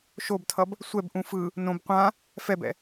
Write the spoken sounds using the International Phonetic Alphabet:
ʃ o b tʰ ʌ b | sʷ ɛ b ʔ ũ f ɯ | n õ b qʷ ã | f ɛ b ɛ̰

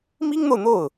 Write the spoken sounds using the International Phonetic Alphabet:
m i˥ ŋ n̪ o˨ ʊ̯ n̪ o˥˩ ʊ̯

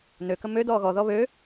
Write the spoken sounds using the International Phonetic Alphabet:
n ø k ə m ø d ɔː ɣ ɔ ð ɔ β ø

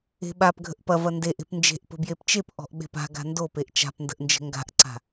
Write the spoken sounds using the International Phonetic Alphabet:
e̤ ɓ a p ɡʱ ə̤ ʔ p ɐ v ɐ n d e ʔ e̤ p n d͡ʒ e̤ ʔ p ə̤ b j e p t͡ʃ e p ʔ ɔ̤ ʔ ɓ e̤ p a̤ ɡ a̤ n d o p e ʔ t͡ʃ a̤ p n d ə̤ ʔ n d͡ʒ ə̤ ŋ ɡ a̤ ʔ ǀ a̤

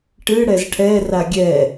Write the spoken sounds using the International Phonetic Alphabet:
ʈ ɨ ɽ ɛ z ʈʰ ɛ r a ɡʲ ɛ

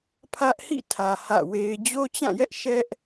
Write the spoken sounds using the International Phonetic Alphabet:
pʰ ä˦ ʔ h ḭ˦˨ tʰ ä˨ h ä̰˦˨ w e˦ ɪ̯ d͡ʑ o˦ t͡ɕ ã˦˨ j ɛ˦ ʔ ʃ ɛ˦ ʔ

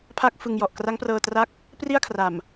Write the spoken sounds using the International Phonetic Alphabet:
pʰ a˥˩ k̚ f ɯ˧ ŋ j ɔ˨˩ ʔ k r a˦˥ ŋ p r ɤː˧ t r a˦˥ k̚ | p r i˥˩ a̯ kʰ r a˨˩ m

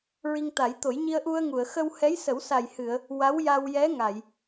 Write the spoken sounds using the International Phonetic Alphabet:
ɹ i˧ ŋ t̪ a˨˩˦ j t̪ o˨˩˦ j ɲ i˧ ə̯ ʔ u˧ ə̯ ŋ u˨˩˨ ə̯ x ə˧ w h ɛ˧˥ j s ə˨˩˦ w s a˨˩ j h ɨ˨˩˨ ə̯ | w a˧˥ w j a˧ w j ɛ˧˥ ŋ a˨˩˨ j

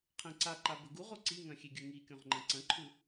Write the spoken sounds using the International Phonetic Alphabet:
qʰ ẽ ǀ a ǃ a b ɵ ɡ u ʁ o ǀ i ŋ ɐ̃ xʲ e ɡʲ ɵ ŋ i kʲ õ ʁ ŋ͡ǃ ɐ̃ ǀ ɐ̃ ǃʰ u

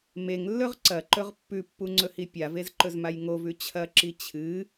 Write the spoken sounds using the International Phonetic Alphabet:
m e ŋ lː ɵ ʁ ǀ ɐ ǃ ɵ ʁ pː ʉ pː u ŋ͡ǀ ɵ h i pʲ a v e z ǃ ɵ z m a j ŋ o v ʉ t͡ɕʰ ɐ ǁ i t͡ɕʰ ɨ

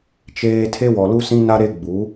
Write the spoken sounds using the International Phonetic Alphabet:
t͡ʃ eː˦ tʰ e˦ w ɔ˨ l u˦ s ĩ˦ n a˦ ɾ e˦ ɡ͡b u˨˦

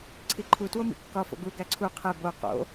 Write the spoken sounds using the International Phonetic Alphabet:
ǀʰ i ǃʰ u t w o m ḭ kː ɒ f o̰ ɡ u ɡ æ ǀʰ u qʰ e b o q o̰

